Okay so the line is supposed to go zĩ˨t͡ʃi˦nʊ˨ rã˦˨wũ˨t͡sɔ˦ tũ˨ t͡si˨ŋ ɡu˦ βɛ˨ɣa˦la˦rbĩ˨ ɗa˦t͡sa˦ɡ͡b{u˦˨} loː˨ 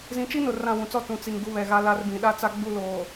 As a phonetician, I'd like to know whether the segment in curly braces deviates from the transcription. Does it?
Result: no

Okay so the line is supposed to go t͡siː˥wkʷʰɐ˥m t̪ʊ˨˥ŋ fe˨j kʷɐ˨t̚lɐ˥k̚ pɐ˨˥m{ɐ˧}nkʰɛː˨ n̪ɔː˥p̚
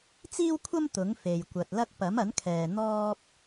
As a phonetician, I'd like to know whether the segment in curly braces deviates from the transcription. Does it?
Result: yes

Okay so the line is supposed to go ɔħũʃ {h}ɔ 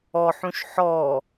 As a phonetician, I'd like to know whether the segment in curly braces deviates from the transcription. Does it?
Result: yes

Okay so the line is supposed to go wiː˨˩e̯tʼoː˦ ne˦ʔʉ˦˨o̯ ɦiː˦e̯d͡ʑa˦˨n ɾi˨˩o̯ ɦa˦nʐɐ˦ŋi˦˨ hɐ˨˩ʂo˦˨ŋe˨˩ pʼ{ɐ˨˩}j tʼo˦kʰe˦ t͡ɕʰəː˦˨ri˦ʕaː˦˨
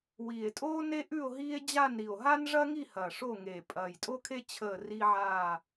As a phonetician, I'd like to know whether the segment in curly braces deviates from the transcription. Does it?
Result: no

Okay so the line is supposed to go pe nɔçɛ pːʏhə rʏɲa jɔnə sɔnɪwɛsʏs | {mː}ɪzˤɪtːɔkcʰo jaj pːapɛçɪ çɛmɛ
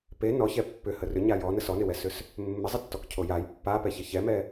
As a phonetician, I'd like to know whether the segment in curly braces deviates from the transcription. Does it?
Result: no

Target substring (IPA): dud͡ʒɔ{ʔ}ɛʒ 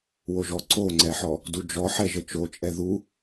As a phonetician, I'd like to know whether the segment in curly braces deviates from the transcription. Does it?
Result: yes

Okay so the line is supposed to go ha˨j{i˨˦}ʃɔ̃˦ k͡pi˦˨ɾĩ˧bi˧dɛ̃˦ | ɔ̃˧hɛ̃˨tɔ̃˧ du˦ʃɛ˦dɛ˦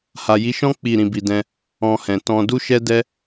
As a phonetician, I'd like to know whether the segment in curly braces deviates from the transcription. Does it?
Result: no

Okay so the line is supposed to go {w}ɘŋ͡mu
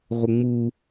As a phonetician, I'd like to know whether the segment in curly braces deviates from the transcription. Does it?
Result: yes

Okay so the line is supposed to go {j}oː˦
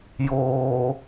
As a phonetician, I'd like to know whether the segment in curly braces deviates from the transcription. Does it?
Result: no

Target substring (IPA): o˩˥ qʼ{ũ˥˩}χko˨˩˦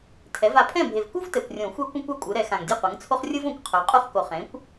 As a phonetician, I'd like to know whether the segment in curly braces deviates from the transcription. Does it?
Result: yes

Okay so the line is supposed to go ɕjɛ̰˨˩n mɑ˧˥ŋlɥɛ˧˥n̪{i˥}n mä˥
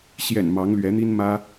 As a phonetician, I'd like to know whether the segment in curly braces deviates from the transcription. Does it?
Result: no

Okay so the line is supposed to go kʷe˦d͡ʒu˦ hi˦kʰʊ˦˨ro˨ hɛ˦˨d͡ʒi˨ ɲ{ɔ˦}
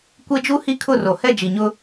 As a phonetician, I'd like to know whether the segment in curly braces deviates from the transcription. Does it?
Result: yes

